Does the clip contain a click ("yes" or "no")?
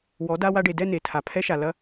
no